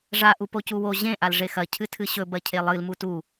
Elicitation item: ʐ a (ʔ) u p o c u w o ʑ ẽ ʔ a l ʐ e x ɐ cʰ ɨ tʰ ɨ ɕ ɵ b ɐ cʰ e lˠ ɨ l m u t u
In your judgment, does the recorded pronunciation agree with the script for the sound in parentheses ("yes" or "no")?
yes